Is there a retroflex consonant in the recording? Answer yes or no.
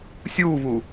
no